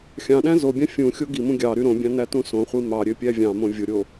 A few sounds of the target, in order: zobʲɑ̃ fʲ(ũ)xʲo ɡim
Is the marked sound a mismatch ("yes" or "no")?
no